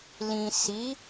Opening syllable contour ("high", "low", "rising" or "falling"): low